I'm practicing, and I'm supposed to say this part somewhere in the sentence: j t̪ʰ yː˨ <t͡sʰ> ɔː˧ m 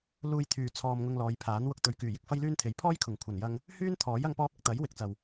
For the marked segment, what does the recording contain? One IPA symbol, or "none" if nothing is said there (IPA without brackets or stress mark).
t͡sʰ